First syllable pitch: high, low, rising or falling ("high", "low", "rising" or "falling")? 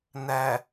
low